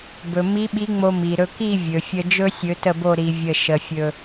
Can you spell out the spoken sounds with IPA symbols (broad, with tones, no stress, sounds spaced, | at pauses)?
b ɵ˩ m i˧˥ ɓ i˧˥ ŋ͡m o˧ m i˩ ɾ ɵ˧ k i˥˧ vʲ ɵ˩ fʲ ə˧ d͡ʒ ɵ˥ sʲ ɵ˧˥ t ə˥˧ b o˥˧ ɾ i˧˥ vʲ ə˥˧ ʃ ə˧ fʲ ɵ˧